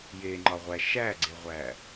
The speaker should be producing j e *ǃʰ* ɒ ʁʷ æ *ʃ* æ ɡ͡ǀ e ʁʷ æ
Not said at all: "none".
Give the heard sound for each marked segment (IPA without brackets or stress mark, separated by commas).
ŋ͡ǃ, ʃ